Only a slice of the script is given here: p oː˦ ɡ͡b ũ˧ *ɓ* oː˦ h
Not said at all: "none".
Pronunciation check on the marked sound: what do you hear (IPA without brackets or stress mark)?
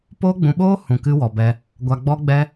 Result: ɓ